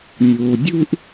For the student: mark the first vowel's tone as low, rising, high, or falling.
low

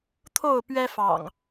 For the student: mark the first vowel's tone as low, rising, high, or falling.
falling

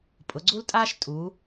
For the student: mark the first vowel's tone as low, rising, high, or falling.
rising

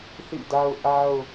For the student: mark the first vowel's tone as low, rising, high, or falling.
falling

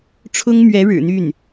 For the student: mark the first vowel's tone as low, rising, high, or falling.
high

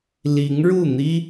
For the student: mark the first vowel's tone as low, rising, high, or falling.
rising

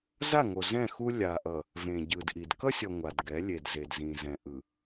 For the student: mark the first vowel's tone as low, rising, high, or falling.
falling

